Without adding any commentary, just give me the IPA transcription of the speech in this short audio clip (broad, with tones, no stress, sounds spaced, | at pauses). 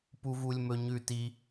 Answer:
p u˩ v u˩ lʲ m ɵ˩ ɲ ʉ˩ t i˩